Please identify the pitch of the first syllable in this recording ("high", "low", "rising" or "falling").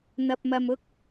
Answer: low